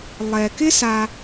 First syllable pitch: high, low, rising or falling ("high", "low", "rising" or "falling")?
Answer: low